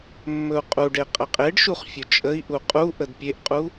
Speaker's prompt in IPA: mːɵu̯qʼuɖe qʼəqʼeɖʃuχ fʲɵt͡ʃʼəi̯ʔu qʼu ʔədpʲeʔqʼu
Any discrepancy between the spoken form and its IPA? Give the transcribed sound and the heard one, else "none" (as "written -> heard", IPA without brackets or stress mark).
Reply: none